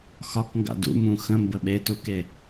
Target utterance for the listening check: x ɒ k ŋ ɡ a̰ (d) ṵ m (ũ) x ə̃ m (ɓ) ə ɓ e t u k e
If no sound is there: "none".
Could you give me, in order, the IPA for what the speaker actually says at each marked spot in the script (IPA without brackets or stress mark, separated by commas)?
d, ũ, b